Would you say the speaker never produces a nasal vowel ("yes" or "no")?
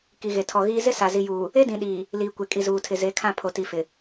no